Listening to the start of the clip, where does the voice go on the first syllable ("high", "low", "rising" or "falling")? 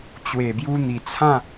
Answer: low